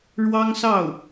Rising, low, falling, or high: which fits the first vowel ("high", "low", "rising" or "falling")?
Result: high